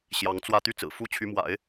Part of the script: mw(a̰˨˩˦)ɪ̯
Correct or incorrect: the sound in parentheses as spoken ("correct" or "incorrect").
correct